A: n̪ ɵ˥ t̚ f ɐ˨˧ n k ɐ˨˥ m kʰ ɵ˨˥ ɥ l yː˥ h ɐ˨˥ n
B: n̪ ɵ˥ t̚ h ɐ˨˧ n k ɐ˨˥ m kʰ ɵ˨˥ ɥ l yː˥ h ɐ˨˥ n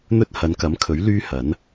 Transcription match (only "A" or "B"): B